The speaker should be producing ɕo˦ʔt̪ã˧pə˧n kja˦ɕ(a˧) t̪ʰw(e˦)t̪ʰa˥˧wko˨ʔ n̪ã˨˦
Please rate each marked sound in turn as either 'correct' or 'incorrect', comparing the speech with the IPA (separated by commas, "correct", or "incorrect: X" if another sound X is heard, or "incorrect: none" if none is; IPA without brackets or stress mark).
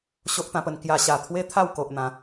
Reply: correct, correct